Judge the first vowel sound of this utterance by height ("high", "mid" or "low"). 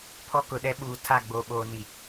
mid